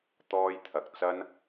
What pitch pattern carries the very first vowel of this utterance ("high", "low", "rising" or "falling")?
high